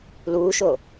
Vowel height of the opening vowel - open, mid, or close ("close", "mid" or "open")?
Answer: close